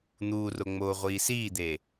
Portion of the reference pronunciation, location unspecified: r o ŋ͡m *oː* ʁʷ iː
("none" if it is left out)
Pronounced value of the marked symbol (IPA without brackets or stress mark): oː